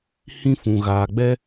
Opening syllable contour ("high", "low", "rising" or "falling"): high